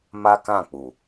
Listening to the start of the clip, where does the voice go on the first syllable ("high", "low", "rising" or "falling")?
high